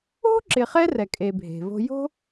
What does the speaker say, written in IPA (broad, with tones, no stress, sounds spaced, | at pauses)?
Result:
o̤˥ ǁ ɪ˨ χ ɛ˦ r ɛ˨ kʼ e˨ bʱ e̤˩ v o̤˦ j o̤˥